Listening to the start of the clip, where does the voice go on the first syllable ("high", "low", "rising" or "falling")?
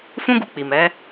high